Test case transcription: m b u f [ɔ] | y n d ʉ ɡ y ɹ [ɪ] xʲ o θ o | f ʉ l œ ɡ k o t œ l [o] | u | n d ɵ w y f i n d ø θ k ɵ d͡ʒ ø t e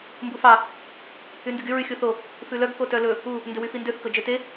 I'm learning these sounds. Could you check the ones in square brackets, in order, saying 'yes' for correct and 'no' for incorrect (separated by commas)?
no, no, no